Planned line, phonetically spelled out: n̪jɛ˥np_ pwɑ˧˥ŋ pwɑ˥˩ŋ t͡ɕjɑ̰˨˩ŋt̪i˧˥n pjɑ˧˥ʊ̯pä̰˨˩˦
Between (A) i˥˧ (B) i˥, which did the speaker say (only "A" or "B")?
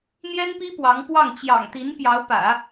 B